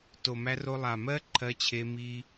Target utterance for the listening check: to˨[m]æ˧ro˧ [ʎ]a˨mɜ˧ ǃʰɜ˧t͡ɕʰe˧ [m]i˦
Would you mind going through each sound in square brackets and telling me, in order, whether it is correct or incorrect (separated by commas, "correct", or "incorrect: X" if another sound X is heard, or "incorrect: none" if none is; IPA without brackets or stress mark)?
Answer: correct, incorrect: lˠ, correct